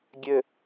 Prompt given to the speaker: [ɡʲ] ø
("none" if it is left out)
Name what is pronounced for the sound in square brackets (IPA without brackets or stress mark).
ɡʲ